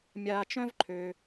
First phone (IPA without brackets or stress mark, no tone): mʲ